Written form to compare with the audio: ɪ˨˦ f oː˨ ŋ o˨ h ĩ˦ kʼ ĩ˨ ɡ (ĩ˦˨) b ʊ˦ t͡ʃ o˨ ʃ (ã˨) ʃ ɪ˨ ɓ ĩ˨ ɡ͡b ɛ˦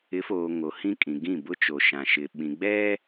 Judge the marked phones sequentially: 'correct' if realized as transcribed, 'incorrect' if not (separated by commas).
correct, correct